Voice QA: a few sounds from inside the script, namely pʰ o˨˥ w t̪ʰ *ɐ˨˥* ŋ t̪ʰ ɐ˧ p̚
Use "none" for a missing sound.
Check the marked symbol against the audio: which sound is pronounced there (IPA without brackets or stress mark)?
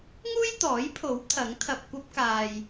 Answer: ɐ˨˥